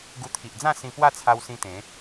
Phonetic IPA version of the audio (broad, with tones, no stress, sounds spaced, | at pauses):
ɡ u˧ t̪ʰ i˨ ʔ d͡z ã˥˧ s ĩ˧ p w a˥˧ t͡sʰ a˧ w s ĩ˧ t̪ ẽ˨˦